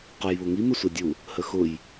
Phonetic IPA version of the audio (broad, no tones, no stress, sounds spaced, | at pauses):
q ʊ j β ʊ ŋ i m ə sʷ ɛ dʲ u | h ə x ʊ j